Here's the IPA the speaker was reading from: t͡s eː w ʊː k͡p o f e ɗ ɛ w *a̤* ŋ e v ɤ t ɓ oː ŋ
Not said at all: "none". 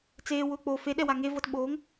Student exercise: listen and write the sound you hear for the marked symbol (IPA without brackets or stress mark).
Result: a